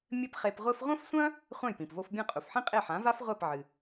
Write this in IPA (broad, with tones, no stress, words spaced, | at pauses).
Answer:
mʲɘ˥pχe˧pʁʷɘ˥f ʁʷɐ̃˥fsʷɐ̃˥ | χʷã˥˩jpĩ˩pvo˧f bʲɐ̃˥˩qʼu˩fħĩ˥ qʼe˥˩ħã˩˥va˥fʁʷɛ˥˩p ʕɨ˩